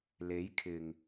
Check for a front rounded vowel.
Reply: absent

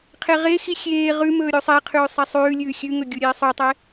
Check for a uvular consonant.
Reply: present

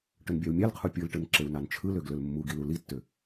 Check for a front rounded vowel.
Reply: present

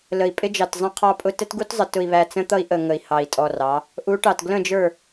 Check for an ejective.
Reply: present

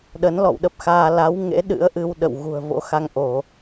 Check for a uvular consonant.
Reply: absent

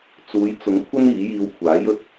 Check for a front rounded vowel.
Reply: absent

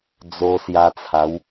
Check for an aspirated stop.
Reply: present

